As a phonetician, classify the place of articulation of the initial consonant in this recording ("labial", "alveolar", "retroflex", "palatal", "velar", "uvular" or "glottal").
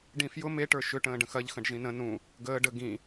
retroflex